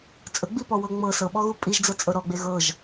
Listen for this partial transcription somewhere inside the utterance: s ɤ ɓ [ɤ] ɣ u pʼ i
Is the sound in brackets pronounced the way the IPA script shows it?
no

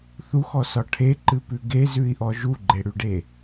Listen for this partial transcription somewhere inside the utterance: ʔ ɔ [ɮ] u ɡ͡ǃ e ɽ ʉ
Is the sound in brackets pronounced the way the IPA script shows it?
no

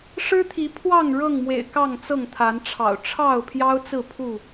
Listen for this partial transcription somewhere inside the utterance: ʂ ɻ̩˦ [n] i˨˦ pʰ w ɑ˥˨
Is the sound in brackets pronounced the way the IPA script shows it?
no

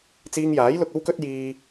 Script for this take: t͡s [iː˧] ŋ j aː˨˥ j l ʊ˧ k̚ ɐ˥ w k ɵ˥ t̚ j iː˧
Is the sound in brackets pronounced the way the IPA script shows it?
yes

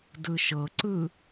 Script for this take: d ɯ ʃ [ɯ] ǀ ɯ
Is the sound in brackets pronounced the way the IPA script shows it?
no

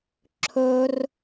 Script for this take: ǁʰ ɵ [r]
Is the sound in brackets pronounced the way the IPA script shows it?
yes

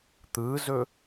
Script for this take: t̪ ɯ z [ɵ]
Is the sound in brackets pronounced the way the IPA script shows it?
yes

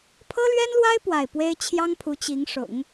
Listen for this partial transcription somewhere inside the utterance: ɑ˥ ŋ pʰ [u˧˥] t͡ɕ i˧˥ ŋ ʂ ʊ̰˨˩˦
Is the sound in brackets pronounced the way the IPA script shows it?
yes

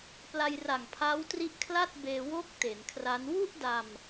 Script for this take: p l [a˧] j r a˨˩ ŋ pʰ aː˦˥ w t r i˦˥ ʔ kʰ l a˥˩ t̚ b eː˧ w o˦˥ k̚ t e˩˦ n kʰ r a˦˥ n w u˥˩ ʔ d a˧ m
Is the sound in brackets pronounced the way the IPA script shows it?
yes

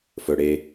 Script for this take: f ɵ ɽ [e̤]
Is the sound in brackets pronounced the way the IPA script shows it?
no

